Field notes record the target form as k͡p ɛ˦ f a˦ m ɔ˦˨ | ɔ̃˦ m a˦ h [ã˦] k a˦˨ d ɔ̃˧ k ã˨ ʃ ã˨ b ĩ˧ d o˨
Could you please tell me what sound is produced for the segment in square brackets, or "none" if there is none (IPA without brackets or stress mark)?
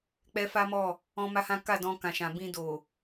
ã˦